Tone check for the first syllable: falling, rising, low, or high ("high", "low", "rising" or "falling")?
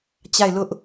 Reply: falling